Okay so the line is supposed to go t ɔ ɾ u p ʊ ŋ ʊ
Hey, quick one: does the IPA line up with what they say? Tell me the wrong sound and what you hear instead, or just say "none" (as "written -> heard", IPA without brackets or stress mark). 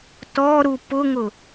none